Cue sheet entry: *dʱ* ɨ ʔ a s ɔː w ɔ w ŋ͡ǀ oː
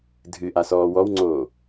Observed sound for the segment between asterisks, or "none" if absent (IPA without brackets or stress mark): dʱ